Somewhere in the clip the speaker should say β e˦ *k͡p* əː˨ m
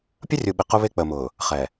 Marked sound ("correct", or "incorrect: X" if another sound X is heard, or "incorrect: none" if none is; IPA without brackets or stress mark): correct